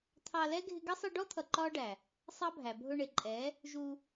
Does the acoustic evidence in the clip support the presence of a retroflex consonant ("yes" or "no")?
yes